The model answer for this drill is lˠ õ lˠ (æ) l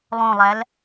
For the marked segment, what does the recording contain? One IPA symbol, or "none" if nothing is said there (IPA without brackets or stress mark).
æ